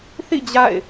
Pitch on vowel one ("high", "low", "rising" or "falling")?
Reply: falling